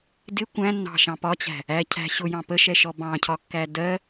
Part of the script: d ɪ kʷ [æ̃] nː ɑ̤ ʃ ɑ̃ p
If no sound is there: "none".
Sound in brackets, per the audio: æ̃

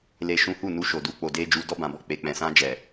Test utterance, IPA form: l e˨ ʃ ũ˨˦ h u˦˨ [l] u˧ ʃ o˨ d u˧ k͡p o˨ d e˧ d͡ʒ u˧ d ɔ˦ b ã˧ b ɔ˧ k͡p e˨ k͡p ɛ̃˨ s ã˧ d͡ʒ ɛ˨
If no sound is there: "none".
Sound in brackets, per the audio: n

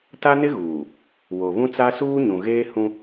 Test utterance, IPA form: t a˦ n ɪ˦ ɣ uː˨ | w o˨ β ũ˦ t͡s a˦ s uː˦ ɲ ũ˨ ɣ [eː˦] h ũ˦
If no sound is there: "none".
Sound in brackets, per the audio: eː˦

